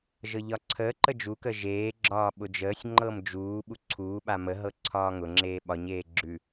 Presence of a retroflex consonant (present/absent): absent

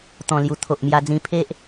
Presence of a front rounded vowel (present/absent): absent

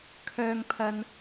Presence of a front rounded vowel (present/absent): present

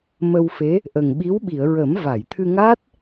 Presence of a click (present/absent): absent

